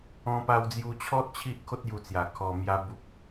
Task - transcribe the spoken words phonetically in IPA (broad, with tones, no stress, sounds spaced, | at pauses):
ɔ̃˧ p a˧ w d͡z j u˧ t͡ɕʰ ɔ˦ t̚ t͡ɕʰ i˦ ʔ kʰ o˦ t̚ j u˧ t͡s j a˨˩ kʰ ɔ˧ m j a˦ b u˦ p̚